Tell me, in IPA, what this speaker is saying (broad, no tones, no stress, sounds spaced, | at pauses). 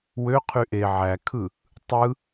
w ø qʰ y ʔ e ʕ æ kʰ ɯ | tˤ ɯ